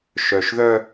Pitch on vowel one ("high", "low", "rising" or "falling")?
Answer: low